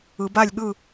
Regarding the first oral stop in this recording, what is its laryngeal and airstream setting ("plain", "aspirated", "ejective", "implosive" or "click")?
plain